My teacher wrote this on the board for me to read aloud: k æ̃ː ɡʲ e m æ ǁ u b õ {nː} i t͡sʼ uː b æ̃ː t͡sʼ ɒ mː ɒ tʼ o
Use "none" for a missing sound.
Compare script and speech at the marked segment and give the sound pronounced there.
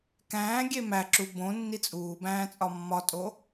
nː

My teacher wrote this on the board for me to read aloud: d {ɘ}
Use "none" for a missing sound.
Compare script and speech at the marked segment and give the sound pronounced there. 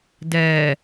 ɛ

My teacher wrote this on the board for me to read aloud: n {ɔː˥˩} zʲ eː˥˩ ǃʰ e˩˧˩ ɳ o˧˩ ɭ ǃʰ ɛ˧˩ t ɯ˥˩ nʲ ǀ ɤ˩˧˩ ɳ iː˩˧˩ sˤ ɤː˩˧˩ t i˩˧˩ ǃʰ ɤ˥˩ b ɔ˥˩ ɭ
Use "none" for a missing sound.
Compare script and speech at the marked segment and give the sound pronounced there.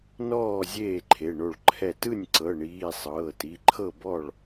ɔː˥˩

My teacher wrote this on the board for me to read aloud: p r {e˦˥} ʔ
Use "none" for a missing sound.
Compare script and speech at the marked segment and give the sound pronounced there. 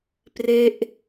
e˦˥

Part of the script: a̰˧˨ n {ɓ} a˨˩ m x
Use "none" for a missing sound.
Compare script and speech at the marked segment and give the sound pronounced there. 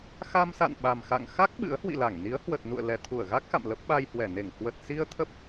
ɓ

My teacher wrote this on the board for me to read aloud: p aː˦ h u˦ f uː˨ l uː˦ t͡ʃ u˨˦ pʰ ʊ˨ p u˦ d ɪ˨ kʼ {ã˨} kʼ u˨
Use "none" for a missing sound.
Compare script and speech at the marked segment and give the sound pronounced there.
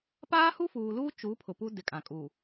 ã˨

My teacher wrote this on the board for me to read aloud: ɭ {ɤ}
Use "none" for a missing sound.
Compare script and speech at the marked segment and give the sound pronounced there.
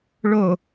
o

